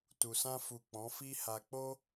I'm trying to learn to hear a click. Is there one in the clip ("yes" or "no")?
no